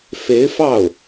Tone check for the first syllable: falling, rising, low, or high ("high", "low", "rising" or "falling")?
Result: rising